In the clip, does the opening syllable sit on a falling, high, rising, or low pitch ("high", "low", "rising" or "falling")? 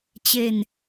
falling